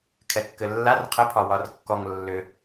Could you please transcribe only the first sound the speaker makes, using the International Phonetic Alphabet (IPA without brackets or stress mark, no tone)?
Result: kʰ